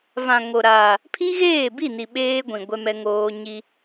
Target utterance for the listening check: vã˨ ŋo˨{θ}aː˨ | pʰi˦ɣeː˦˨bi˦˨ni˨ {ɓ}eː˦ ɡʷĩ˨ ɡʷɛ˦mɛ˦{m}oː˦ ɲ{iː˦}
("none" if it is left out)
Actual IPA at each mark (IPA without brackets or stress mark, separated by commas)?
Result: ɾ, ɓ, ŋ, i˦